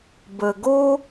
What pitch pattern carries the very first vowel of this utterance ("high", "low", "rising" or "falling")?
low